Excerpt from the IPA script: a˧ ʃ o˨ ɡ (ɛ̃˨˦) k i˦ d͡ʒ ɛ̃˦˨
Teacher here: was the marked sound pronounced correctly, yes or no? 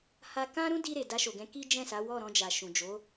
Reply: yes